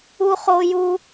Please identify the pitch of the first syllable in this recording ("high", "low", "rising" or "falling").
high